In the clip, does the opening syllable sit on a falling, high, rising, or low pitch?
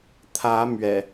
rising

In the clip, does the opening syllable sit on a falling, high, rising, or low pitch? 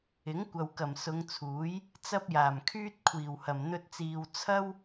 rising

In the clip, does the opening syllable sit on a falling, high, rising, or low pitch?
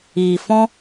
low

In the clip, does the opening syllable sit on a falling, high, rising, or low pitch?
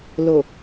low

